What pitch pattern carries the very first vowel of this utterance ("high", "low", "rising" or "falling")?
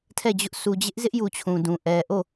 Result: falling